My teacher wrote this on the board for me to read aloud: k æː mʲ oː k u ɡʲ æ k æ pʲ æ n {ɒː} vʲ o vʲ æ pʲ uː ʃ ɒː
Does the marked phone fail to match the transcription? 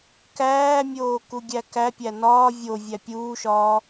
no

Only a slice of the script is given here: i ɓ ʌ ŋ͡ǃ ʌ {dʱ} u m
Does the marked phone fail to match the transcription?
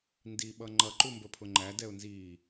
yes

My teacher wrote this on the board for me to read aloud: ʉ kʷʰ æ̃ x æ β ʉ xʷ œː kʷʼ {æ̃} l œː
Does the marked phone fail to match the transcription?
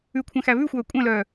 yes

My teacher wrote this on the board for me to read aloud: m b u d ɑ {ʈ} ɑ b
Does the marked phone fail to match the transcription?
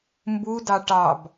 no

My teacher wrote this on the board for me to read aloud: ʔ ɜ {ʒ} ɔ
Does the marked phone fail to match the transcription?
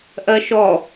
yes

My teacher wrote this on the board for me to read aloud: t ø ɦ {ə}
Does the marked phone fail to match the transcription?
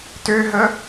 no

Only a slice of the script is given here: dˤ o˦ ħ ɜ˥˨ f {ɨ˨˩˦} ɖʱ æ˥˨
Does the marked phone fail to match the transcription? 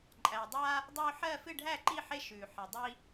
yes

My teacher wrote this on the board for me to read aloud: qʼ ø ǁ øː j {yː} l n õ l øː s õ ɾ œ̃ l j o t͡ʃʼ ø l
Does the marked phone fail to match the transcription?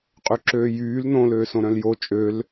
no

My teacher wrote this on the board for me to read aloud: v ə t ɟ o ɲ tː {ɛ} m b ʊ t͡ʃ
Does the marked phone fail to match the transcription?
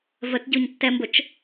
no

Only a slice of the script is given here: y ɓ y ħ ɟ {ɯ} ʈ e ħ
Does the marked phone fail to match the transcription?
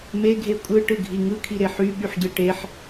no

